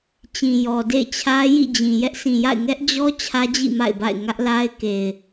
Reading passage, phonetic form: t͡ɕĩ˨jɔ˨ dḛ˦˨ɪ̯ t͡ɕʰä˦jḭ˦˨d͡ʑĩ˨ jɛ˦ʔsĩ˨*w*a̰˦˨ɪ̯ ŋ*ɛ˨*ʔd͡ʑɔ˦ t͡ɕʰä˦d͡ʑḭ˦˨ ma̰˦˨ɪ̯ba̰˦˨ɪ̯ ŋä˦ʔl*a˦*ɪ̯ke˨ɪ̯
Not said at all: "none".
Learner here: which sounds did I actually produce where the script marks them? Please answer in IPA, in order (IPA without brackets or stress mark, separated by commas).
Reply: j, ɛ˦, a˦